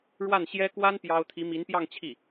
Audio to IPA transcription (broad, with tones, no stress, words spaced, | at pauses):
ɻwa˥˩nɕjɛ˥ kwa˥n pjɑ˥ʊ̯ t̪ʰi˧˥mi˧˥npjɑ˥˧ŋ t͡ɕʰi˥˩